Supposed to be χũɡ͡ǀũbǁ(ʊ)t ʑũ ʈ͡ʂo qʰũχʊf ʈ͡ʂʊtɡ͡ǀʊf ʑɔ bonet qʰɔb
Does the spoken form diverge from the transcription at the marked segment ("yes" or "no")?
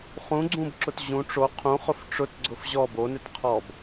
no